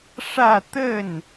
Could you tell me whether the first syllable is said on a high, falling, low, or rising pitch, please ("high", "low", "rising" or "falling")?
falling